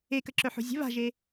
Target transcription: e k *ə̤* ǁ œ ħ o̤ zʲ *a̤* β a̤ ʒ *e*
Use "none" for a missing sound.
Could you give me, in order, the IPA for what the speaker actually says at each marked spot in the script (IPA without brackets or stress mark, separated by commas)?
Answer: ə, ə̤, e